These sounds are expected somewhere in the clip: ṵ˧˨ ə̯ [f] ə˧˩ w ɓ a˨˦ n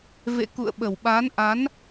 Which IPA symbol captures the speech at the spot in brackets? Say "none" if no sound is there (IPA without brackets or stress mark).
ɓ